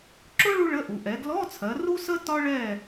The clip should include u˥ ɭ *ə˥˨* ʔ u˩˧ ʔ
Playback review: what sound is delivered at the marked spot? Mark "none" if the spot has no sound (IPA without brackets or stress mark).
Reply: ə˧˥˧